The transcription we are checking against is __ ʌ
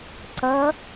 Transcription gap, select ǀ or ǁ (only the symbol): ǀ